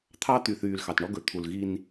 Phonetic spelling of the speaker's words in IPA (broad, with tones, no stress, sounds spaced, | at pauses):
t̪ʰ ɑ˦ t̪ y˨ θ yː˨ l x ɑ˨ t ɳ ɔ˦ ɡ ɵ˨ t̪ʰ u˨ l ɣ i˦ n